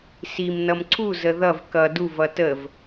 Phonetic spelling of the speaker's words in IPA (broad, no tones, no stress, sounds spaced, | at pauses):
s i m n ʌ m ǀʰ u z ə ð ʌ v k ʌ d u v ʌ t ə v